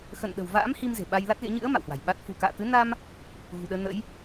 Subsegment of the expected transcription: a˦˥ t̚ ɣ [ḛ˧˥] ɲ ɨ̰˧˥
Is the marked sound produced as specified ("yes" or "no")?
yes